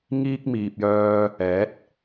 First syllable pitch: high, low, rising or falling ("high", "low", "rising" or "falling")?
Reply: high